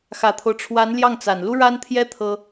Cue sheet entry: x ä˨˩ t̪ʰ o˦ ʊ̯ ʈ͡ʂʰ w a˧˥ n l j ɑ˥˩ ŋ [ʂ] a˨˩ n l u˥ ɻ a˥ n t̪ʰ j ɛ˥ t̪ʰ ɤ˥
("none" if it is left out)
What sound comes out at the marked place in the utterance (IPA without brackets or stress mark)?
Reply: t͡s